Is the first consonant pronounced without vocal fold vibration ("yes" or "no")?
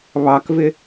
no